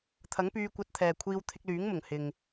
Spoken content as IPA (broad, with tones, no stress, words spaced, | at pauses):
t̪ʰɐ˨˥ŋpyː˧kʷɐ˧t̚t̪ʰɛː˨ kʷʰiː˧wt̪ʰɪ˧k̚lyː˨˥ŋmʊ˨˩ŋ hɪ˨ŋ